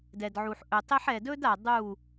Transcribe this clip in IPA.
d ɛ˨ d ʕ u˨ ħ ʔ ɵ˨ tˤ e˦ ħ ɛ˨ d ɵ˦ d a˨ dˤ u˦˨

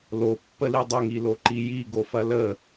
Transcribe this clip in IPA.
l o pː ə l i dˤ ə ŋ i l o ǃ i j i ɡ o f ɐ l ə

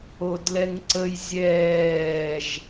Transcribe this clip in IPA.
o d l ɛ ŋ ǀ ə j zʲ ɛː ʒ

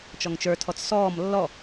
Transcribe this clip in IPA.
t͡ʃ ɔ ŋ t͡ʃ ə˞ tʰ ɔ t͡s s ɔː m lː ɔ

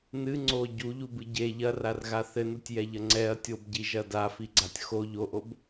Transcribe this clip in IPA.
n ɨ ŋ͡ǀ o ɟ u ʎ u b ɨ ɟ e ʎ ɐ r a r ɣ a θ ɘ n u tʲ j ɛ ʎ ɐ ŋ͡ǀ ɛ ɐ̯ tʲ o b ɟ i ʒ ɐ d a f i ɡ͡ǀ a tʲ x o ʎ o ʔ o b

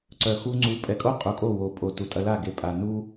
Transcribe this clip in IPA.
ǀ œ˨ x u˧ ŋ͡ǀ u˨˦ pʼ ɛ˨ kʼ o˦ qʼ u˨ kʼ o˦˨ w o˨ pʼ o˨ t u˨ tʼ ɐ˧ l a˦˨ ɡ e˨ pʼ a˨ n u˦

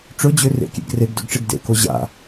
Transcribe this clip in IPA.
ʈ͡ʂ ɵ d͡ʑ ø r ḛ kʲ ḛ ɡ r e ɡ d ø ɡ ʈ͡ʂ e ɡ d ḛ k o ʑ a̰

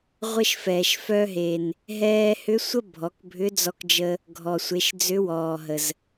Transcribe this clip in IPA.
ʁʷ ə˧ ʃ f ɛː˩ ʃ f œ˧ ɦ e˩ n | ɦ ɛː˧ h ʏ˧˥ sʷ ə˥ bʱ ɔ˩˧ k bʱ ʏ˧˥ d͡z ɔ˧ k d͡ʒ ə˧ | ɡʱ ɔ˩ sʷ e˩˧ ʃ d͡z ʏ˧˥ w ɔː˩ ɦ ə˩ z

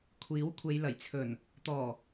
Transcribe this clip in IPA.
kʷʰ iː˨˥ w kʷʰ e˨˧ j l ɐ˨˩ j t͡sʰ ɵ˨˩ n | t̪ ɔː˨˩

